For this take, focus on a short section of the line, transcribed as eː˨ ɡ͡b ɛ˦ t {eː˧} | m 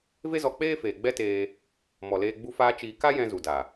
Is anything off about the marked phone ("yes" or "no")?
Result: no